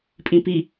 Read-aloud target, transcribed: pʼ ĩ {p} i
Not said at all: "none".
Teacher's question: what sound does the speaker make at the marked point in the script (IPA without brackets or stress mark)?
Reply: p